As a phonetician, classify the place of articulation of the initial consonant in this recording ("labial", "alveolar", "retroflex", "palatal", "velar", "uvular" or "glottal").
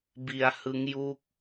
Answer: labial